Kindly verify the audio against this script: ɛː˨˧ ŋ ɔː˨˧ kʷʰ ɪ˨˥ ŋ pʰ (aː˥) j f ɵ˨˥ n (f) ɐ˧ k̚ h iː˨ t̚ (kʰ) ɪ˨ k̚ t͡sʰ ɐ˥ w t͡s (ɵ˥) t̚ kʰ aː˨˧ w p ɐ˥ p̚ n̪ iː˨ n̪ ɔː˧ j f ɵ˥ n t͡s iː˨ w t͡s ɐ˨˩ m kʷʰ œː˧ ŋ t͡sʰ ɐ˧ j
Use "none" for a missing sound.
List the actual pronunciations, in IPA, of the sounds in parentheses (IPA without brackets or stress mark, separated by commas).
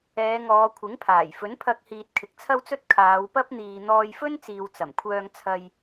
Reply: aː˨˩, pʰ, kʰ, ɵ˥